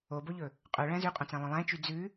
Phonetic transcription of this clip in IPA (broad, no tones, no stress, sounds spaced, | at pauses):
o b o ʎ ɵ | qʼ œ ɭ æ̃ z ʉ qʼ õ t͡s æ̃ lˠ œ̃ lˠ æ̃ t͡ʃ y d͡z ʉ